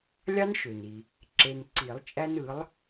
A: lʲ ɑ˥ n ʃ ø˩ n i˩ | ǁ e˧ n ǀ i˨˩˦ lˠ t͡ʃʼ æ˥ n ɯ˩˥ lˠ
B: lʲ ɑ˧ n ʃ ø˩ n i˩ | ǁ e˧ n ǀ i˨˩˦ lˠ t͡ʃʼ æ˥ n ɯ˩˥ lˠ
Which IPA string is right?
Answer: A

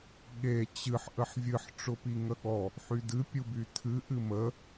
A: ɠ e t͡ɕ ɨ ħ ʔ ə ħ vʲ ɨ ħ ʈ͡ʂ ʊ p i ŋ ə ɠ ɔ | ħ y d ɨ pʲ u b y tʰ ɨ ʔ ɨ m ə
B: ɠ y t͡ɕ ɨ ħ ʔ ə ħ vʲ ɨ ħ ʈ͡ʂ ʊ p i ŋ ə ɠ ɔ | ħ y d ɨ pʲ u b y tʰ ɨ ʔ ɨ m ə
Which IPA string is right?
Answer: A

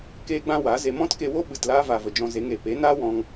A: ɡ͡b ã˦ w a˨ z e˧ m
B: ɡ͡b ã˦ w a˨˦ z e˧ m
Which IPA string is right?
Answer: B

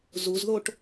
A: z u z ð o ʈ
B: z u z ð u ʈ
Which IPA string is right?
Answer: A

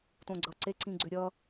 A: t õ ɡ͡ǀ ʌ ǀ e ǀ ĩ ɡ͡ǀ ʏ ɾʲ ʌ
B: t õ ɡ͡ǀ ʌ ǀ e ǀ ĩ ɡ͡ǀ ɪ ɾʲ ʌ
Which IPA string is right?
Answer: A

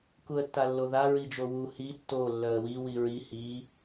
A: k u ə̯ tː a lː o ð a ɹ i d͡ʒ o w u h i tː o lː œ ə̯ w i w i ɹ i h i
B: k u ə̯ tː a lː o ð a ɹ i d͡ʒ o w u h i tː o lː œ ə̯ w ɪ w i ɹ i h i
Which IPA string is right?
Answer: A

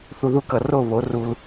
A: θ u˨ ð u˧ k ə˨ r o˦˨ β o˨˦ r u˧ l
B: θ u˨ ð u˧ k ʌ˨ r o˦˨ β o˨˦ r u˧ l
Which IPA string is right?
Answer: B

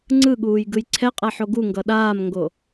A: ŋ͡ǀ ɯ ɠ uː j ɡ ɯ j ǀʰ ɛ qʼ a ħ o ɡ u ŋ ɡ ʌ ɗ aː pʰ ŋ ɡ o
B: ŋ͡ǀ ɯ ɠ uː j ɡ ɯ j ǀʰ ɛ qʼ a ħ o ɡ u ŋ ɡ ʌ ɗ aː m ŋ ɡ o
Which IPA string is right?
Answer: B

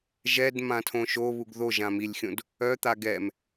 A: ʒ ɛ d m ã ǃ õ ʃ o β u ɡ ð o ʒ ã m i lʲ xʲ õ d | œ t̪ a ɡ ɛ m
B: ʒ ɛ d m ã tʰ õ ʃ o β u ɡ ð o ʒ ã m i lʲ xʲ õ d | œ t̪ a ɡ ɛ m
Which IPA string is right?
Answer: B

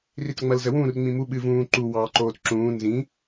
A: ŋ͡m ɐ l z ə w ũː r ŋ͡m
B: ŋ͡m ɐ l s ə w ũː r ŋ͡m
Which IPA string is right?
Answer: A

